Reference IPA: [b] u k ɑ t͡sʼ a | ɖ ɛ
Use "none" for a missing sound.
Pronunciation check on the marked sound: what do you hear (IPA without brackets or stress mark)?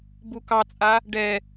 b